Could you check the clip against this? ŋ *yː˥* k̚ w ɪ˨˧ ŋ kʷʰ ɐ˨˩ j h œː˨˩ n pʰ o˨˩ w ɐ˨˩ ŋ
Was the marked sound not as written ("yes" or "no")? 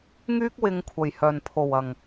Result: no